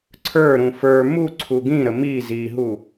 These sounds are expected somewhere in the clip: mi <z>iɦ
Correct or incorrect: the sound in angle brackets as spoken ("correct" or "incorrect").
correct